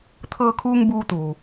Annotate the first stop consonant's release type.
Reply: aspirated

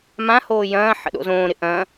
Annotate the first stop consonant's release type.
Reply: implosive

